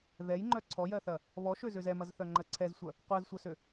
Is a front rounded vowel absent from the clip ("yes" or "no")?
no